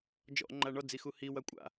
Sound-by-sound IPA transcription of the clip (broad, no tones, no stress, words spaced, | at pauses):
d͡ʒɔ̰ ŋ͡ǃaɳɔd͡zi xuhiwa kʷʼa̰